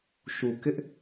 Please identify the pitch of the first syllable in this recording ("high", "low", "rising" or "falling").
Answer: low